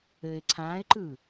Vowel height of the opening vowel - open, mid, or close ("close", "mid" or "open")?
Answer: mid